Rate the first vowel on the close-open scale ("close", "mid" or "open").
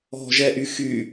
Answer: mid